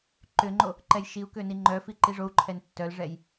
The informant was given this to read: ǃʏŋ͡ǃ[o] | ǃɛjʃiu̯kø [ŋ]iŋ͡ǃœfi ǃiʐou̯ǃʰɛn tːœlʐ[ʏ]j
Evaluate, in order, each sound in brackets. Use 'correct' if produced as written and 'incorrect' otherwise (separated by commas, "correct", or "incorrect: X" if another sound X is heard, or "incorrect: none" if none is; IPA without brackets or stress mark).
correct, incorrect: n, incorrect: ɛ